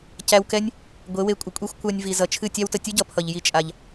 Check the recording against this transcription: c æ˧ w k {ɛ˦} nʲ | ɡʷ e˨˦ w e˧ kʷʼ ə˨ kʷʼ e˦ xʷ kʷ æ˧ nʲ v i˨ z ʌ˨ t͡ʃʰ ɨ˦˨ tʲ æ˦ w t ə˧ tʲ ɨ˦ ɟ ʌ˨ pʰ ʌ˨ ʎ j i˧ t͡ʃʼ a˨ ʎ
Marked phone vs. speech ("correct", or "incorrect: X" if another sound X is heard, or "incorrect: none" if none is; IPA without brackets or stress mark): correct